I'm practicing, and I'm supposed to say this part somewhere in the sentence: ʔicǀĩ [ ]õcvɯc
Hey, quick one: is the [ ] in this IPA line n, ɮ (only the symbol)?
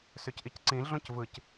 ɮ